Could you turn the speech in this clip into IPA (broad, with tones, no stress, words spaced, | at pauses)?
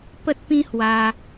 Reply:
pə˦t̚pĩ˦hwa˧